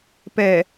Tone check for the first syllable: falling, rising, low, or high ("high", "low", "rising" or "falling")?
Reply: low